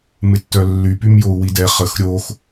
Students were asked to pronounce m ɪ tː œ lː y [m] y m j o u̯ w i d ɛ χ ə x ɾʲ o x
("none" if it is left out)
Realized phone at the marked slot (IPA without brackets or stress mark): p